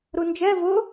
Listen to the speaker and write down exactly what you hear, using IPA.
ɾ u n d͡ʒ ɛ v ʊ

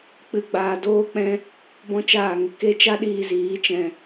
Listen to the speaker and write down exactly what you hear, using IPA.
k͡p ɨ˧ ɡ͡b aː˧ d oː˦ k͡p ɛ̃˦ | b ɔ̃˦ t͡ʃ aː˦˨ ŋ ə˦ k e˦ t͡ʃ a˦ ɗ iː˧ z iː˨˦ t͡ʃ ɛ̃˧

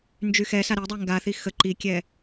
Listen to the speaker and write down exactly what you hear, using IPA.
n d͡ʒ y x ɛ s a ɾ i dˤ ɛ ŋ ɡ a θ i x ə ǃ i kʲ ɛ

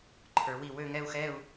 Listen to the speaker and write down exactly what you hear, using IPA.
ǃʰ ə˞˩˧ w i˧˩ w ø˥˧ ŋ ɛ˥˧ u̯ x ɛ˥˧ u̯

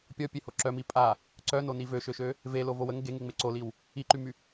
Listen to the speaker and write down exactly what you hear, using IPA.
pʲ ɔ pʲ e h o ǁ œ m i pʼ a | ǀ œ n o n i v ø ʃ ø ʃ ø | v e l o v o w ə ŋ ɡ e ŋ e ŋ͡m e ǀ o l i w | i ǃ y m y

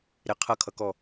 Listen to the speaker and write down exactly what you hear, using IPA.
ɾ ɪ qʰ ʌ kʰ ʌ k ɔ

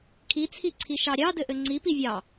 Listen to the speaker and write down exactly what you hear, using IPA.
kʰ i t͡sʰ i ǀʰ i ʃ ɑ ɾʲ ɑ d ɘ ʔ ɘ ŋ͡ǀ i p i vʲ ɑ

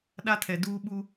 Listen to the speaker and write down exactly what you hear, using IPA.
ɗ a˦ tʰ ɛ˨ d uː˦ ɓ u˦

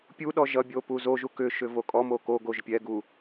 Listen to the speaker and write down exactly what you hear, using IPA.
pʲ u ɗ ɔ ʒ ʌ bʲ o p u z o ʒ u k ʏ ʃ ʏ v o kʼ ɔ m o k o ɡ o ʒ pʲ ɛ ɡ u

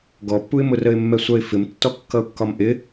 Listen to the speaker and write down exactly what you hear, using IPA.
ɡ ɔ pː u ɪ̯ m ʊ r ə ɪ̯ mː ɛ sʷ ʌ ɪ̯ f ɪ m tː ɔ kː ʌ ʊ̯ kː ɒ m ʔ ɪ

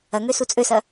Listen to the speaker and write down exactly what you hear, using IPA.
ɐ ŋ ø s u t͡sʼ ø s ɐ

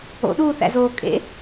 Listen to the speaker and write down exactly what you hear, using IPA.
o̰ ɗ uː θ æ̰ z oː kʼ ḛ

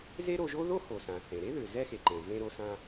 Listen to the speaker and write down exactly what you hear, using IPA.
z e˥ ɾ o˧ ʒ o˥ ð o˥ h o˩ s ã˩ θ ẽ˩ ɾ e˥ ð ʏ˩ z ɛ˧ x e˩ ǃ ẽ˩ v ẽ˧ ɾ o˧ s ã˧

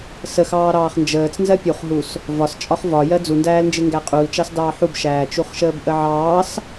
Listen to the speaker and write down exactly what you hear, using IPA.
s ə x ɑː ɾ ɑː χ n d͡ʒ əː t͡s n z ɜ pʲ u χ ɦ u s | v ɒ s t͡ʃʼ ɒ χ v ɒ j ɜ d͡z u n d æː l n d͡ʒ ɪ ŋ ɡ æ qʼ u l t͡ʃ ɑ s d ɑː ħ u b ʃ æː t͡ʃ u χ ʃ əː b ʔ ə ʕ ɑː s

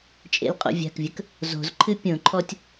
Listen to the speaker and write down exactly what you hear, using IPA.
t͡ʃʼ ḛ l qʼ o̰ vʲ a̤ k vʲ ə k | z o̤ z ǃʰ ɨ pʲ õ ǃʰ ɔ tʲ

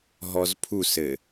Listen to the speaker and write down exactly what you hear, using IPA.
ɦ ɔ z pʰ u s ɘ

